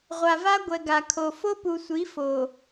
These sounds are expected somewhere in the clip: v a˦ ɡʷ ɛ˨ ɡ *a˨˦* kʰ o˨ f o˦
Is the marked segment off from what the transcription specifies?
yes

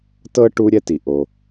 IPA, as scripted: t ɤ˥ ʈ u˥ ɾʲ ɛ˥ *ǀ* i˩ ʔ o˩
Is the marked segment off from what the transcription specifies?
yes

